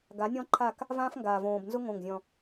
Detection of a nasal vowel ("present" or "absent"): present